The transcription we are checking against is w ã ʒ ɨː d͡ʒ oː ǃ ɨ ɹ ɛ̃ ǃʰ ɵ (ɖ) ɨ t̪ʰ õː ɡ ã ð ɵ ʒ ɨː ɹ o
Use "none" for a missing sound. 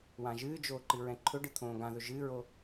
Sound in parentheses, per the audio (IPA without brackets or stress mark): ɖ